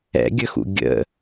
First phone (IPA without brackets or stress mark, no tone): ɛ̰